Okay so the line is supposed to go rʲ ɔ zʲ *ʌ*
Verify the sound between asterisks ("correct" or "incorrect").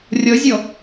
incorrect